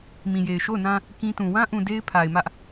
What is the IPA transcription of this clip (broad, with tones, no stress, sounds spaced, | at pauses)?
m ĩ˨ j e˨ ɪ̯ ʃ o˦˨ ʊ̯ n ã˦ | k ĩ˦ t ũ˨ w ã˦ ʔ ũ˨ d e˦ ɪ̯ pʰ a˨ ɪ̯ m ä˦ ʔ